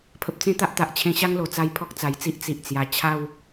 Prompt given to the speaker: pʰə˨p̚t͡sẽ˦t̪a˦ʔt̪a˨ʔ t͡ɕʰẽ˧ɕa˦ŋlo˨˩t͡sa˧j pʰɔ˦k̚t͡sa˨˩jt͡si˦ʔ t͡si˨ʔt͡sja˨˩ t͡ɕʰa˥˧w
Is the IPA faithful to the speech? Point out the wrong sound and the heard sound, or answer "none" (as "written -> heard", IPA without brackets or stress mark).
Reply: none